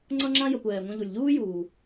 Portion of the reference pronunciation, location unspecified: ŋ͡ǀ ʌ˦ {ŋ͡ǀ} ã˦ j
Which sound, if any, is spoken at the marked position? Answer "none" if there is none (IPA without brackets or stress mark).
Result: ŋ͡ǁ